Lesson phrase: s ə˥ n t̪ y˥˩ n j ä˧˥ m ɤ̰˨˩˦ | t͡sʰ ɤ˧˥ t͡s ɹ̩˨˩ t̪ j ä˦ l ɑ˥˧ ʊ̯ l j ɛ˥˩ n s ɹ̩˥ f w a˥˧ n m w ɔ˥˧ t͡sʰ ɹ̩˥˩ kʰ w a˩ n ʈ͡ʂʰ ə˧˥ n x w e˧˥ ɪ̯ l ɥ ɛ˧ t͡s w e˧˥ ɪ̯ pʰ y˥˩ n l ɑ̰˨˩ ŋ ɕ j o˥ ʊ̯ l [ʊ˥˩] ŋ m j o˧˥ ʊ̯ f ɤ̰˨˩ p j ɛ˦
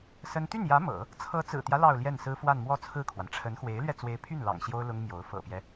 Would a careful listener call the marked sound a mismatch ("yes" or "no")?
yes